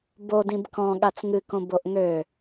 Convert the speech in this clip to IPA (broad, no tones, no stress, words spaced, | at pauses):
bodĩb kɔ̃ ɠat͡sŋɨkõ boʔŋø